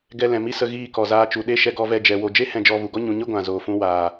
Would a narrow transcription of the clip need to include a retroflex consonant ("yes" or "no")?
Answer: no